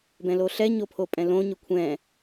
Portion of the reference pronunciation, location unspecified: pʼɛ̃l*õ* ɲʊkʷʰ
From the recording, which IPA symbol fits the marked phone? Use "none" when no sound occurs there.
õ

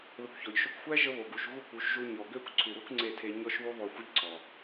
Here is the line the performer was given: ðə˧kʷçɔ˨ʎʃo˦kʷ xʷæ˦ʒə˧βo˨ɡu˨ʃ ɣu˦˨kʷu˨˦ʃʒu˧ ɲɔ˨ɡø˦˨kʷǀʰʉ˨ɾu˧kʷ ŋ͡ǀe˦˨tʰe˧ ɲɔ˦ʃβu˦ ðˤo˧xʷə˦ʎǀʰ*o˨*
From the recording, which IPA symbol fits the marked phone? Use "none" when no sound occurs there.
ɔ˨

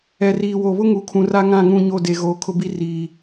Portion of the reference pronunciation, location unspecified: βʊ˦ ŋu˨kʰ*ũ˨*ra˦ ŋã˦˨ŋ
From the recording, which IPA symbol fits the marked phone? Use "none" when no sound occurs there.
ũ˨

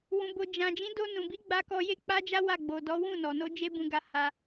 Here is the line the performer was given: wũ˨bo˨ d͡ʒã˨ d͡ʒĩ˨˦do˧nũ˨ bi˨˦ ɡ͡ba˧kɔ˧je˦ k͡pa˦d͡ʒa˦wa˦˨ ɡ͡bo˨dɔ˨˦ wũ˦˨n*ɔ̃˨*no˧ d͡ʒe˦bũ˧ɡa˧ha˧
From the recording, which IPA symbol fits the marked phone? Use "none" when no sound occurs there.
ɔ˨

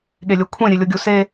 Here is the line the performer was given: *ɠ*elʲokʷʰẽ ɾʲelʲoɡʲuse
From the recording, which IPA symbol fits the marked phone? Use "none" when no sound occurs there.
ɠ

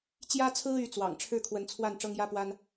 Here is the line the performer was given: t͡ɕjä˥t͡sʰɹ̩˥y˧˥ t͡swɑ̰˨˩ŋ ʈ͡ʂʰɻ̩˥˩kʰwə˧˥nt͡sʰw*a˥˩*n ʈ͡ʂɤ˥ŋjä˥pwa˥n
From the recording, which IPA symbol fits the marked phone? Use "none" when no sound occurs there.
a˥˩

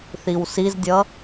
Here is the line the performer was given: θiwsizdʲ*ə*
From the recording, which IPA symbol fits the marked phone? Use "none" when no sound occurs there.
ʌ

